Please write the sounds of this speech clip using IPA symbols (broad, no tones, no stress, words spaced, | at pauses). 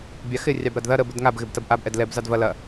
bʲɑxɪ rʲɑbɾɐdðɐ ɾə bədŋab ɣɪbtɐbʔab ʔɛdlɛb zɑdvɐ lɐ